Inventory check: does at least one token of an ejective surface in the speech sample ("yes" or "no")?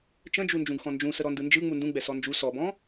no